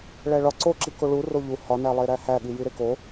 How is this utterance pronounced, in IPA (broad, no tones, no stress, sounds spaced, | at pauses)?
ɭ æ ɭ ɒ ǀ o ǁ i k o ɭ u r o ʎ u h ɒ n æ lˠ e ɾ æ h æ ɠ i j i ɾ e k o